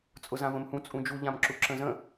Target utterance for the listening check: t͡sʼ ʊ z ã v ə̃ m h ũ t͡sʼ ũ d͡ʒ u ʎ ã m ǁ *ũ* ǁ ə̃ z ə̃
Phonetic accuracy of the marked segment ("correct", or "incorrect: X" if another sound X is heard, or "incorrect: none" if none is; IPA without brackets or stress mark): incorrect: u